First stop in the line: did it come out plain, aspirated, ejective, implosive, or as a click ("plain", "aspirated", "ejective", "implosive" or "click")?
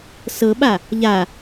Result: implosive